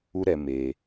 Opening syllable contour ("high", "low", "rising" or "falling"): high